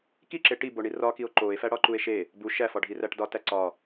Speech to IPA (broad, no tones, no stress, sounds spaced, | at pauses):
k i ǁ e ʈ i b o ɳ i r ɒ k i o̯ ǃ o e̯ f æ ɽ ɒ ǃ u e̯ ʃ e | b u ʃ æ f ɒ ɖʱ i r æ ʈ d ɒ t æ ǀ ɒ